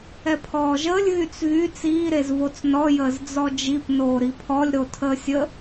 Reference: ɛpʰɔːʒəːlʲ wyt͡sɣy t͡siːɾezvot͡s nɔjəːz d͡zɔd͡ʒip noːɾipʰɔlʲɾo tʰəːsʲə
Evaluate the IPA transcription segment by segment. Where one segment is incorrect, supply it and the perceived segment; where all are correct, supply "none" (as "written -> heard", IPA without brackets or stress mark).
w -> ɣ